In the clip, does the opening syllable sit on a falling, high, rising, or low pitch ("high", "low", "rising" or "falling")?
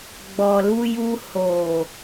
low